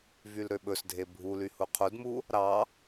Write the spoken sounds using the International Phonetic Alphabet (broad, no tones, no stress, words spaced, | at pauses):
vylɾøɓɵsdʱe bʱuly huqʰudmu | ɾɑ